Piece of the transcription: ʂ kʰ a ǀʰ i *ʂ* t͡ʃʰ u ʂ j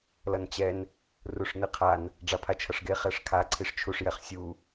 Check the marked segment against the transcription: correct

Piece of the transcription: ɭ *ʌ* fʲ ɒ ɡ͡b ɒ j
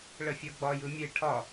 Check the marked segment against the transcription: incorrect: ə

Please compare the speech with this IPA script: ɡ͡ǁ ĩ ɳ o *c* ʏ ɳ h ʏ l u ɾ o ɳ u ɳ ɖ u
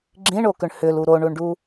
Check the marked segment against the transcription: incorrect: k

